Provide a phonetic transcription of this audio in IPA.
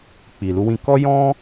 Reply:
k͡p i˨ l u˧ w ĩ˧ k ɔ˦ j ɔ̃˦

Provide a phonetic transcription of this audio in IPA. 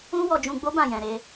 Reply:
ũ˦ w ɔ˧ d͡ʒ ũ˧ ɡ͡b o˦ b ã˦˨ j ɛ̃˧ ɾ e˧

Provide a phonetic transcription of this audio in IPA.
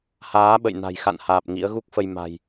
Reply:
h aː˨˦ ɓ ə̰˧˨ j n a̤˨˩ j x a̰˧˨ n h aː˨˩ p̚ ŋ ḭ˧˥ ə̯ ɣ u˦˥ k̚ f ə˧ j m a̤˨˩ j

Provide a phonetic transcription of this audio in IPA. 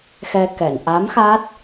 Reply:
x ɛ˧ k ɛ˨˩˨ n ʔ a˧˥ m x a˦˥ t̚

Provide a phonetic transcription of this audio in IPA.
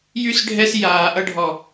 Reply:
j y˦ s ɖʱ ɛ˦ s j aː˦ ʔ ʌ˦ ɖʱ ɔ˦

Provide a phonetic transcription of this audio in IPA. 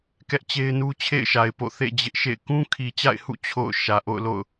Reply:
k ɛ˦ ʔ t͡ɕ e˦ ɪ̯ n u˦ t͡ɕʰ ḛ˦˨ ɪ̯ ʃ a˨ ɪ̯ p o̰˦˨ θ ḛ˦˨ d͡ʑ ɪ˦ ʔ ʃ ḛ˦˨ ɪ̯ k ũ˦ kʰ i˨ t͡ɕ a̰˦˨ ɪ̯ h ṵ˦˨ t͡ɕʰ o̰˦˨ ʊ̯ ʃ ä˨ ʔ o̰˦˨ ʊ̯ l o̰˦˨ ʊ̯

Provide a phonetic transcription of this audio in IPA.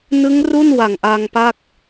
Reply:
n ɯ˦˥ ŋ r u˥˩ n w a˨˩ ŋ ʔ a˧ ŋ p a˥˩ k̚

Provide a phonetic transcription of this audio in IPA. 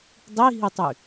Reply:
dˤ i ɦ i tˤ y

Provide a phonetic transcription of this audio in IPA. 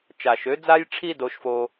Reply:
t͡ʃ a˨ ʃ ø˨˦ d͡z a˦ j ʈ͡ʂʰ i˦ d o˦ ʃ f o˦

